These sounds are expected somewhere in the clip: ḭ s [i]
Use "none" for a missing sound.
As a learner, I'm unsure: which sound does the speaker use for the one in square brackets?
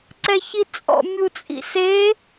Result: e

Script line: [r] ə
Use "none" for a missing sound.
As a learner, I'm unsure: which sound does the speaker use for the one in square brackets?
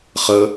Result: χ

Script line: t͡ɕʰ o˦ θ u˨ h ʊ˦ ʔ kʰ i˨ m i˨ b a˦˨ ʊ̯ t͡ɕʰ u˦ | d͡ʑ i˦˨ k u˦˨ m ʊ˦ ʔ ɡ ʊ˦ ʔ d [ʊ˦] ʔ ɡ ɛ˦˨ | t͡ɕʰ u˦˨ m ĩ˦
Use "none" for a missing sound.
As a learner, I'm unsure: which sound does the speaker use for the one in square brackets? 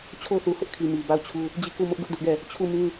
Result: ʊ˦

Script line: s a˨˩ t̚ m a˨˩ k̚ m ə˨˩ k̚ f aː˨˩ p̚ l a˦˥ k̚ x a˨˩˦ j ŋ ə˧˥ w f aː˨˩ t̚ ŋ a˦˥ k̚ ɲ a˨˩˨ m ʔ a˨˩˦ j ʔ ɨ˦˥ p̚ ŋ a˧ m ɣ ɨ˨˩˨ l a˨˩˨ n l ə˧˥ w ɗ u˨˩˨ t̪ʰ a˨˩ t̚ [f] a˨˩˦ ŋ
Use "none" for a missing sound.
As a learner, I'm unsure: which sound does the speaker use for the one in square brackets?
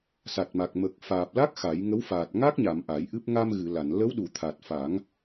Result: f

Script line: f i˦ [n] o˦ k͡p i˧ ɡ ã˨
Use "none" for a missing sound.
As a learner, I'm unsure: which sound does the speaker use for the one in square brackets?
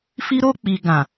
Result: ɾ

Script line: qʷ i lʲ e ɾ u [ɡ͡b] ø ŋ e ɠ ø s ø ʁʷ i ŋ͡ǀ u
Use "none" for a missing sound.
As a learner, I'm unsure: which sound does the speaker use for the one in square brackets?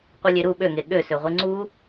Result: ɓ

